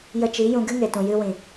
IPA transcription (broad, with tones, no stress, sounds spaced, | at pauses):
j ə˧ t͡ʃ i˨˦ j ũ˧ ɡ ɨ˦ ŋ e˨ t ũ˨ j ɨ˧ w ĩ˨